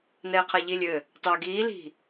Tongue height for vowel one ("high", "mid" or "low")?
mid